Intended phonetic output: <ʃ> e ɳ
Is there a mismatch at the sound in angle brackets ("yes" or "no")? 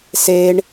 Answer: yes